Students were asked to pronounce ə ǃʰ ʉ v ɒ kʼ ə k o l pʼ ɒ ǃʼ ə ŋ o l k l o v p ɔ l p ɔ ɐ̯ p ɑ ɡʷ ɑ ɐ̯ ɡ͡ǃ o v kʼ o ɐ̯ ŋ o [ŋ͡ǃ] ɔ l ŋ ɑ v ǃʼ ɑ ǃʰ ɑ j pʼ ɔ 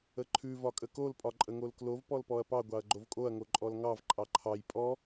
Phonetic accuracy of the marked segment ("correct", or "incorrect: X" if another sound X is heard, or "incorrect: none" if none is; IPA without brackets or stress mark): incorrect: ǃʼ